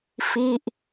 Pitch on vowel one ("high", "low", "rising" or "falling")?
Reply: falling